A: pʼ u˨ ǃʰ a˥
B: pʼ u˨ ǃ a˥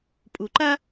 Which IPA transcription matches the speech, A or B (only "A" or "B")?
B